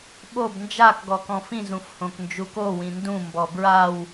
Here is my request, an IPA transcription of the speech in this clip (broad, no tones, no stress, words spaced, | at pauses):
ɓob nd͡ʒak ɡɔkɔ̃fĩ zũfhõknd͡ʒuko wĩndũ mbɔbɹaw